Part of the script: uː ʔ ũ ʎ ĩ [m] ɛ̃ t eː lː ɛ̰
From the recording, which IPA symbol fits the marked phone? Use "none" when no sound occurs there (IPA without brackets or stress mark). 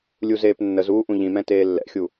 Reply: m